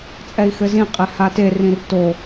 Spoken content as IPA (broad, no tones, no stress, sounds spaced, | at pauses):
t͡sʼ ɛ i̯ x ɘ z ĩ qʼ e h a t e r ĩ r t o